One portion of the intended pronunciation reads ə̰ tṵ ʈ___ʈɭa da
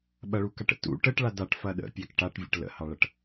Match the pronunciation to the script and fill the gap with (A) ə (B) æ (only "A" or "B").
A